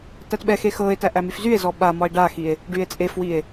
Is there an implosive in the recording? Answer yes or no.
yes